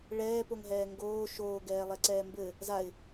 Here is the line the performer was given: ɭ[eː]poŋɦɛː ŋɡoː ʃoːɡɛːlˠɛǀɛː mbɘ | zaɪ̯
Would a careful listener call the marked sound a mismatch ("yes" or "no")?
yes